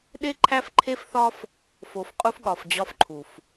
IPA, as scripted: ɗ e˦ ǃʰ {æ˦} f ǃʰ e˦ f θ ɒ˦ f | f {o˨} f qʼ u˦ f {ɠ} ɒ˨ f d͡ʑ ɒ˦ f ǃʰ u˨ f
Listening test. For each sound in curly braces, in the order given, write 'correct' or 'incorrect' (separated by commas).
correct, correct, correct